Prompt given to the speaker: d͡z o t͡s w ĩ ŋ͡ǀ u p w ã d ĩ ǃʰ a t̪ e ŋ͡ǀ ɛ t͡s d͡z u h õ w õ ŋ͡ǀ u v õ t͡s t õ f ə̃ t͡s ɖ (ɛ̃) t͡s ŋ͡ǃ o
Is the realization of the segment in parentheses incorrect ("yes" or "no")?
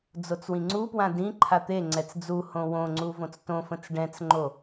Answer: no